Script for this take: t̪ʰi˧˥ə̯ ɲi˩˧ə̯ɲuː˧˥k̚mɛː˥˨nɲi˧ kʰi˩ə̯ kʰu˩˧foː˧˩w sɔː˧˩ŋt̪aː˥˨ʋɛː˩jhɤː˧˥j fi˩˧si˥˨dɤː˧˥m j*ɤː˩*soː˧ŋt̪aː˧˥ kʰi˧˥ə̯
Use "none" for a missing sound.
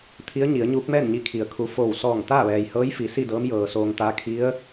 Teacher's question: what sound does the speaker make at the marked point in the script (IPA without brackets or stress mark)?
ɤː˩